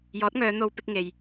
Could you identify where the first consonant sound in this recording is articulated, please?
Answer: palatal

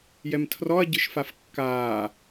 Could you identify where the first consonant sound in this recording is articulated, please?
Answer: palatal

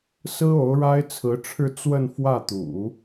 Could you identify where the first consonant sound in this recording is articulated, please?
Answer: alveolar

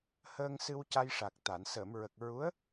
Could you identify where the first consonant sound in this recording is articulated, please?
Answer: glottal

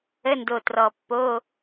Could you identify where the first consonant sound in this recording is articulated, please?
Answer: alveolar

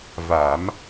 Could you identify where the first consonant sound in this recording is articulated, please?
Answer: labial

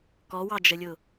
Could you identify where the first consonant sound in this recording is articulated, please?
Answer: velar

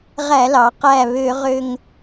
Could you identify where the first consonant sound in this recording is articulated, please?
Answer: uvular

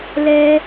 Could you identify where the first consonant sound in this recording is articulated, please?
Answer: alveolar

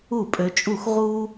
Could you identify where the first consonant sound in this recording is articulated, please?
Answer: labial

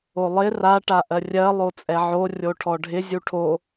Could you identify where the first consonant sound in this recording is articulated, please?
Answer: alveolar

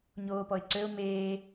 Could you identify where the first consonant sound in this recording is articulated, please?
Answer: palatal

